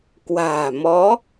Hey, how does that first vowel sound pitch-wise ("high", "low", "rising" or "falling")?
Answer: low